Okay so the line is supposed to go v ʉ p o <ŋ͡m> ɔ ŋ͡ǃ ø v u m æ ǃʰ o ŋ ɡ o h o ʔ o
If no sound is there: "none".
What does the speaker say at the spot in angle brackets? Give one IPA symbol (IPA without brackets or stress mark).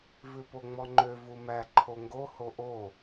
ŋ͡m